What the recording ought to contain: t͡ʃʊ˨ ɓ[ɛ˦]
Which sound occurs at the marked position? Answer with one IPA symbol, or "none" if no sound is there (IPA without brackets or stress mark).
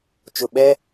ɛ˦